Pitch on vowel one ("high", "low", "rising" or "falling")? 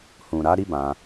low